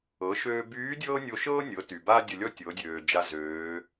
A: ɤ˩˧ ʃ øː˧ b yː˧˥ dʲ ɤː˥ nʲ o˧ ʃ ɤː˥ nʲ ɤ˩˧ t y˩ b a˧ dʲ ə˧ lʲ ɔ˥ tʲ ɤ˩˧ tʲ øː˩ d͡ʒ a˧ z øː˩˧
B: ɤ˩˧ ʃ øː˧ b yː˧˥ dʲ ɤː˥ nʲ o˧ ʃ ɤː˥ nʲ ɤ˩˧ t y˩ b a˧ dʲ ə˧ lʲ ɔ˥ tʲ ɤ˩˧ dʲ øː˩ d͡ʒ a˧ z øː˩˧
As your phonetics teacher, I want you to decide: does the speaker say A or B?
B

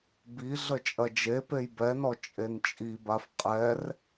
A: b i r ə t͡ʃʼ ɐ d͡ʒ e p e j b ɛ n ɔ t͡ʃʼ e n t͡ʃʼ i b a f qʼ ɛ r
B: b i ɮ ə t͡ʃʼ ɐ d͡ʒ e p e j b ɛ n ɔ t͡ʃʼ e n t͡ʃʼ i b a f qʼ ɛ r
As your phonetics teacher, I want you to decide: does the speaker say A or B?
B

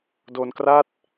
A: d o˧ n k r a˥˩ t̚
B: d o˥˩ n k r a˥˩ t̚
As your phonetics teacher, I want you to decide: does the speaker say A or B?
A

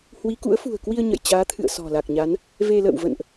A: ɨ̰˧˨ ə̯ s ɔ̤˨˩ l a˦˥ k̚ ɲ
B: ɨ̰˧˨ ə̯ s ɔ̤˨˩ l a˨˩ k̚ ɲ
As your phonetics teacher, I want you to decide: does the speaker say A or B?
B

